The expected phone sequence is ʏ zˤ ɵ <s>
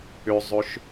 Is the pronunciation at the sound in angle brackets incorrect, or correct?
incorrect: ʃ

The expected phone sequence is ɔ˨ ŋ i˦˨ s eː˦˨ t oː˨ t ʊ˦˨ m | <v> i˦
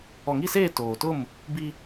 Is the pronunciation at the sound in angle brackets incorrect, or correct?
incorrect: b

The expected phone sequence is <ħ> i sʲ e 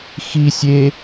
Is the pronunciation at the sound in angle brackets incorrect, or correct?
incorrect: x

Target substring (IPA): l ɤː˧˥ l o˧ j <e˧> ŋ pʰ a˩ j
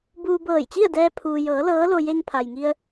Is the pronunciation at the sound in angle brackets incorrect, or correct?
correct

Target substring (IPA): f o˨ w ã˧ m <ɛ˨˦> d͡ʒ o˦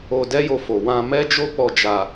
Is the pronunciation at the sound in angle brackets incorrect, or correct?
incorrect: ɛ˦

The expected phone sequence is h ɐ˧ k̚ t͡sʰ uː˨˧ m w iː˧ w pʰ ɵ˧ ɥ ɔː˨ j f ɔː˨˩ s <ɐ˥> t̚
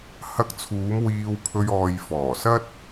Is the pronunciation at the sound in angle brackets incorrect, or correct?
correct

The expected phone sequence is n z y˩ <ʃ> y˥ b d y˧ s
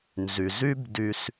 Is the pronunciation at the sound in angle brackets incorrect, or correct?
incorrect: z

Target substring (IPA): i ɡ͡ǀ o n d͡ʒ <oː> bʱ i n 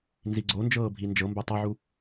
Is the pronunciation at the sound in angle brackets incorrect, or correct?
incorrect: ɤː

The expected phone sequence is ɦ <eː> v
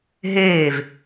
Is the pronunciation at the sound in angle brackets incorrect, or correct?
correct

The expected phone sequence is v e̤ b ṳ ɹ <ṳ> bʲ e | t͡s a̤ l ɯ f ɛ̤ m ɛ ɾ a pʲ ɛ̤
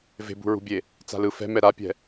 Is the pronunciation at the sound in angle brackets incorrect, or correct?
correct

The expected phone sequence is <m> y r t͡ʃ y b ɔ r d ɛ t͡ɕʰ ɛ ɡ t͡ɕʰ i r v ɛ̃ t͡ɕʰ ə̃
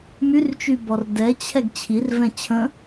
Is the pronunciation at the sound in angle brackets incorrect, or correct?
correct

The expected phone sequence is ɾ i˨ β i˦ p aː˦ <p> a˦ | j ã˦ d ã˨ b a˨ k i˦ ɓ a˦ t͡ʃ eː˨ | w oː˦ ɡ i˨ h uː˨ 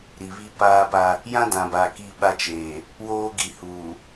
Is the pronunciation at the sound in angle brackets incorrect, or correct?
correct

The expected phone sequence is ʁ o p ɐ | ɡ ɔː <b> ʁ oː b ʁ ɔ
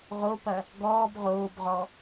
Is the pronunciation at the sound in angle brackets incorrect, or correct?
correct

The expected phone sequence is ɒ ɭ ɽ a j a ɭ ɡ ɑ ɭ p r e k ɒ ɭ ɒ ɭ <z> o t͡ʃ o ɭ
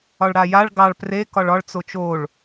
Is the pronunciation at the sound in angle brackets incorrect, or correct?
incorrect: t͡s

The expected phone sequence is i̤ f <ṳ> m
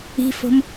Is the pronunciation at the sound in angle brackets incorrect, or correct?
incorrect: o̤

